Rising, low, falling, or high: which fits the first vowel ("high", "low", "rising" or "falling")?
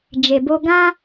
low